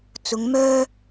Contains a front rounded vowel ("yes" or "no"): yes